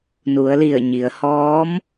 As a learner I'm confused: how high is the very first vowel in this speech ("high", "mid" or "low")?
high